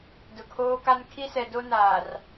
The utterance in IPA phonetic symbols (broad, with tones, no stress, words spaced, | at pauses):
dʊ˨kʰoː˦ka˦n kʰi˦sɛ˨do˦ naː˨r